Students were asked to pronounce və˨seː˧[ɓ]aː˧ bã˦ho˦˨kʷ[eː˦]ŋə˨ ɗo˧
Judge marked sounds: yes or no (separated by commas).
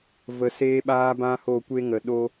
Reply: yes, no